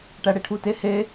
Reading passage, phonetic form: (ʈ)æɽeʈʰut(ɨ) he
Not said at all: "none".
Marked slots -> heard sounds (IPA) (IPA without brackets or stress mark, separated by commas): ʈ, e